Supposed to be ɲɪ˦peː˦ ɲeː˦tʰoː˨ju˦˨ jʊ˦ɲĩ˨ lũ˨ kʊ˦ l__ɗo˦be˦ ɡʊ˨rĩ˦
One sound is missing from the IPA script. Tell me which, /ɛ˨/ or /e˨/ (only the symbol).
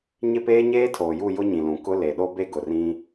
e˨